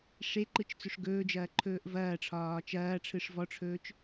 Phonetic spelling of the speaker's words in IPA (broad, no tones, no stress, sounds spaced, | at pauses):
ʂ e ǃ ɯ t͡ʃ t͡s ɵ ʂ ɡ ɵː d͡ʒ ɐː ǃʰ ɵː ʔ v ɐː ʈ͡ʂʰ ɒː t͡ʃ ɐː ʈ͡ʂʰ ɯ ʂ v ɔ ʈ͡ʂʰ ɵː t͡ʃ